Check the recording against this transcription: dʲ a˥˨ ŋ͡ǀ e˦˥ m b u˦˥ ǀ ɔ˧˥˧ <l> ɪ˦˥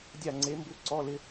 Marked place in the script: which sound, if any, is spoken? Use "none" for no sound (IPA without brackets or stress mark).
l